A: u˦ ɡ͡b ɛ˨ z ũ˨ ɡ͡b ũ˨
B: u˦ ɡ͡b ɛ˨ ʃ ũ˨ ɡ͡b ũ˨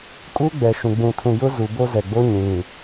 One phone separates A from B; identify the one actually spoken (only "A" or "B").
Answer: B